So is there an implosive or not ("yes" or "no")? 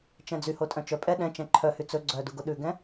yes